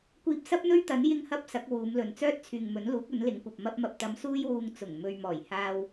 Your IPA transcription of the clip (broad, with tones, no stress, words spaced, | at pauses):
kʷiː˧p̚sɐ˥p̚n̪ɵ˥ɥ t̪ɐ˨˥n jɪ˧ŋhɐ˧p̚ sɐ˨˥k̚wuː˨˧mlɵ˨n t͡sœː˥t̚t͡sʰyː˨ŋmɵ˨˥nluː˨˥k̚ ɵ˨˥nlɪ˨˥ŋkʷɐ˨p̚ mɐ˧p̚mɐ˨p̚t̪ɐ˨˧m suː˥jwuː˧ŋ t͡sʊ˨˩ŋ mɵ˨ɥmɔː˨˩j haː˧w